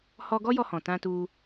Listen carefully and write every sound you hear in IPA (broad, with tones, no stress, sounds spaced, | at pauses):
h ɔ˦ ɡ ɔ˦ j ɔ˧ h ɔ̃˨ t ã˧ t u˧